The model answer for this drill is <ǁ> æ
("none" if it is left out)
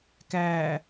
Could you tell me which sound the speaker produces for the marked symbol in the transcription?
k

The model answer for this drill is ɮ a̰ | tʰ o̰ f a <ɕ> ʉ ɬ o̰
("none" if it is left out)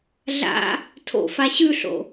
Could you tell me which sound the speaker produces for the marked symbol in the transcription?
ɕ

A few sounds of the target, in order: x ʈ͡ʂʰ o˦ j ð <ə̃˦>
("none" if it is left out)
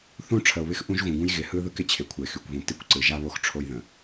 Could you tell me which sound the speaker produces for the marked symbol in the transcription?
ə̃˨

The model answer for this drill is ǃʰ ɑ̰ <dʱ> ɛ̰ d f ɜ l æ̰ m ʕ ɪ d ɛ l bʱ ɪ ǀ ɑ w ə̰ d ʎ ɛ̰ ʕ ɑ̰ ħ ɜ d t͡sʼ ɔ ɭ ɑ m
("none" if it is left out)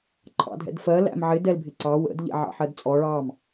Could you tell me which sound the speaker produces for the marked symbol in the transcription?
dʱ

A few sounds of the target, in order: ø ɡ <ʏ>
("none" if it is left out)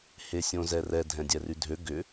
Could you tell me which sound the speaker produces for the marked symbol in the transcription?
ʏ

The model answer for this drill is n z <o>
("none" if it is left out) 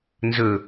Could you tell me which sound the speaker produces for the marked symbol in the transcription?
ɵ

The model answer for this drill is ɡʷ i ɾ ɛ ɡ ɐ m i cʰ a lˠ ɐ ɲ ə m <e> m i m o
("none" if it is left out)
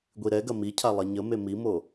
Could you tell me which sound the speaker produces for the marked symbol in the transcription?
e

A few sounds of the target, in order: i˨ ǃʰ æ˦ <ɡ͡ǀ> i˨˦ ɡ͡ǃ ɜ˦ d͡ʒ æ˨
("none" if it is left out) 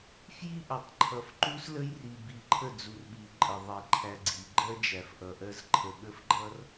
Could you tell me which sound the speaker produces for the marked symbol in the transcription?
ɡ͡ǀ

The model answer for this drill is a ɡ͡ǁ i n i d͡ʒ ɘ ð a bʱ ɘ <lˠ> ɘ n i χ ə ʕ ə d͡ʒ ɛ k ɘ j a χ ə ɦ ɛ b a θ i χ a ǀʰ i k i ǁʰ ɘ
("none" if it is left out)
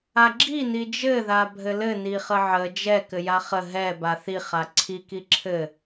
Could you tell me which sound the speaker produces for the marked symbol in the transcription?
l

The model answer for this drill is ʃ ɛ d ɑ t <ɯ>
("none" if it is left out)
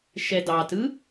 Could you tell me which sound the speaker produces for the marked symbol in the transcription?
ɯ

